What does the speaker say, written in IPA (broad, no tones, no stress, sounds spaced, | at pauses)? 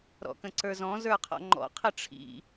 ɾ ɔ̰ k ə̃ ǀ ə˞ z ɔ̃ z ə˞ qʰ ɔ̰ ŋ͡ǃ ɔ̰ qʰ ə ʈ͡ʂʰ ḭ